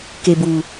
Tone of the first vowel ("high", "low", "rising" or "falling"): low